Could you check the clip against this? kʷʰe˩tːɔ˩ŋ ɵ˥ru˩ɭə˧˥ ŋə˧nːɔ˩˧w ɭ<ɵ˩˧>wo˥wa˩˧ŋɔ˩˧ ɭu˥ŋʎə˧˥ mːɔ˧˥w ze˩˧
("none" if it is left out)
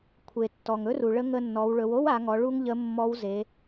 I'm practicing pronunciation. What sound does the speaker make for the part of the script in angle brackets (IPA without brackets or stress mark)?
ɵ˩˧